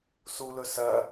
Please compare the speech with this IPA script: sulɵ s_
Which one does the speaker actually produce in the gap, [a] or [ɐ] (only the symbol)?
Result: ɐ